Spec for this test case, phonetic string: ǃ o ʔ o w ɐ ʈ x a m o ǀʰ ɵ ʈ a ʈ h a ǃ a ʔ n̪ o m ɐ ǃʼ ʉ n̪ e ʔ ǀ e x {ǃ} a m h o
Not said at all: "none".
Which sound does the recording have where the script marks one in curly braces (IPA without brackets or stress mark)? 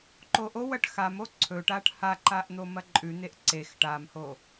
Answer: ʈ